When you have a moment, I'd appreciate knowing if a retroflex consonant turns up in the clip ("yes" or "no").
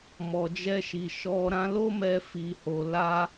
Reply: no